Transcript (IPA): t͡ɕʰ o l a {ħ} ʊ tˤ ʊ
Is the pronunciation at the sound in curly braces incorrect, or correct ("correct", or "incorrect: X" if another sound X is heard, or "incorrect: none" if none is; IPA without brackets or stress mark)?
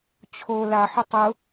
correct